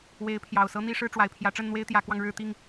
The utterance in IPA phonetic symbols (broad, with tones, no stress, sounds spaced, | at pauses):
w e˨˦ ɪ̯ pʰ j ɑ˨˩ ʊ̯ s ɤ˦ n̪ i˥˨ ʂ ɻ̩˥˨ ʈ͡ʂ w a˨˩ ɪ̯ pʰ j ä˨˦ ʈ͡ʂ ə˥˨ n n̪ w e˦ ɪ̯ t̪ j ä˨˦ k w ɑ˧ ŋ ɻ ɻ̩˥˨ t̪ i˥˨ ŋ